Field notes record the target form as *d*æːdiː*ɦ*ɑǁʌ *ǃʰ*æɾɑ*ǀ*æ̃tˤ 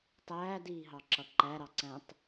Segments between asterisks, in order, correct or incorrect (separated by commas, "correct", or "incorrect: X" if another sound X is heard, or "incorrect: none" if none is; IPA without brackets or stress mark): incorrect: tˤ, correct, incorrect: ǃ, correct